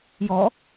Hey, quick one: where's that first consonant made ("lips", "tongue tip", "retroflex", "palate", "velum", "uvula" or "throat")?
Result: palate